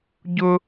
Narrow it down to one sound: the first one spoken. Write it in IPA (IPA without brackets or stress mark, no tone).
ɟ